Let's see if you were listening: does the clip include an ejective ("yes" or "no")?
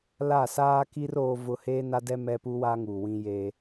no